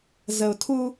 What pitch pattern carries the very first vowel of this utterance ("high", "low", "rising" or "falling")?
low